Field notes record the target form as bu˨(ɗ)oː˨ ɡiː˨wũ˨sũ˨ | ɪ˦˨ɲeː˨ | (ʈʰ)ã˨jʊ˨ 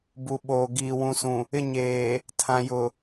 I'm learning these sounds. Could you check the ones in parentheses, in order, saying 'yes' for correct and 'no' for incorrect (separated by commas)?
no, no